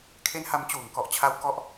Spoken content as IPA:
kʰ e˦˥ n h a˧ m t͡ɕ uː˨˩ ŋ k ɔ˨˩ ʔ t͡ɕʰ a˦˥ w k ɔ˥˩ ʔ

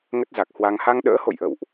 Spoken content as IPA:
ŋ ə˦˥ t̚ z a˨˩ k̚ h w a˧ ŋ h a˧ ŋ ɗ ə̰ː˧˥ h o̰˧˨ j ʔ ə̰˧˨ w ʔ

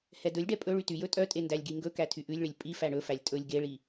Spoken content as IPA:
h ɛ d ɵ lʲ ɖ ɛ pʼ ɵ ɭ y t y j ɵ tʼ œ tʼ e n d æ lʲ ɡ i ŋ ɡ ɵ k æ tʰ y ʔ ʉ lʲ ɭ e lʲ pʼ i f æ ɳ ɵ f æ lʲ tʼ ɵ lʲ ɡ e ɭ i

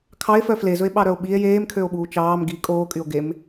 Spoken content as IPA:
kʰ ɑ e̯ f œ f l e z ɵ e̯ ɓ ɑ ɾ œ o̯ ɓ i e̯ j eː m kʰ ø o̯ ɓ uː t͡ʃ ɑː m ɡ i kʼ oː kʼ y o̯ ɡ e m

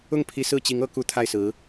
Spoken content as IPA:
ʊ˥˩ ŋ pʰ i˧˥ s ɹ̩˥˩ t͡ɕ i˧˥ ŋ ɤ˧˥ k u˧˥ t̪ʰ a˥˩ ɪ̯ s ɹ̩˧˥

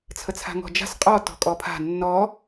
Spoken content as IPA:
t͡sʰ ə t͡sʰ a̤ ŋ ɔ̤ d͡ʒ a̤ s qʼ ɔ t ɔ̤ kʼ ɔ pʰ a̤ nː ɔ

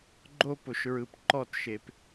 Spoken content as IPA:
ɡ͡ǃ o˦ p o˨ ʃ ɹ ɯ˨ p ǃ ɔ˦˨ t ʃ e˨ p

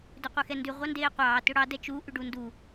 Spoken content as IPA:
d ø qʷ e x ɛ n d ʉ ʁʷ ɑ n d eː qʷ ɑː t ø ɽ ɑ d ɛ t͡ʃ u ʔ ʉ ɖ u n d u

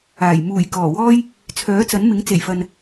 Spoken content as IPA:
aː˨˩ j m uː˨˩ j k ɔː˨˩ w ɔː˥ j | t͡sʰ œː˨˥ t͡s ɐ˨˥ n m ɪ˨˥ ŋ t͡s e˨˩ j f ɐ˨ n

